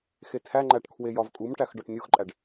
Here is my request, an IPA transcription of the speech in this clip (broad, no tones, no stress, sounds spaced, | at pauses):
x e tʰ æ ŋ͡ǃ æ ʈ kʰ w e j ɒ v kʼ u m ʈ æ x ɖ ɒ ʈ nʲ u x ǃʼ æ ɖ